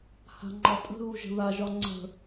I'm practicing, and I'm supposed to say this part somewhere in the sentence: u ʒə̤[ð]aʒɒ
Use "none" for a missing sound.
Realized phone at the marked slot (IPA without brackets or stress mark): ð